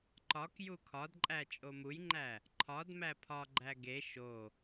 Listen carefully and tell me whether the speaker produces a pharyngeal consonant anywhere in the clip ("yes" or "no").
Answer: no